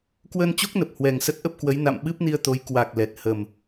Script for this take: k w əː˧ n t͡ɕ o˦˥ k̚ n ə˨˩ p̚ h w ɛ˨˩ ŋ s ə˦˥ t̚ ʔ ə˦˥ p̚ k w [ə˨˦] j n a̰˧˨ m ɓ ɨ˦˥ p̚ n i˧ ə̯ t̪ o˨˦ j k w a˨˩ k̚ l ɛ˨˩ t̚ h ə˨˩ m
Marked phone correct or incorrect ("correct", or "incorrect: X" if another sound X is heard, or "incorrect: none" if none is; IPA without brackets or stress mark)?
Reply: correct